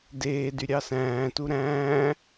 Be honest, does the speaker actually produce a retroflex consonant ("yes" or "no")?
no